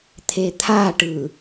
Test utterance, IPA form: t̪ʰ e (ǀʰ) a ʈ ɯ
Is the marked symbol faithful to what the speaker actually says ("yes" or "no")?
no